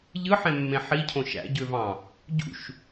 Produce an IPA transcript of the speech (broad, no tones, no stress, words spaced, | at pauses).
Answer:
ʎɯħẽmːẽ ħicʰõ ʃæ̰ɟøvɑ̃ | ɟṵʃ